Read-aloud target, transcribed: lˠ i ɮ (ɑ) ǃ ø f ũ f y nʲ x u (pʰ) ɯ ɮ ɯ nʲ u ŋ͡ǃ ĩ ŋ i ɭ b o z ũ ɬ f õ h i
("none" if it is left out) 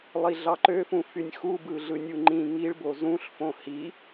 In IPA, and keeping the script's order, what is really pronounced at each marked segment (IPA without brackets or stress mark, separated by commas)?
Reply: ɑ, b